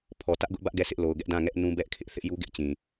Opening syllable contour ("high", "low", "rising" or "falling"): low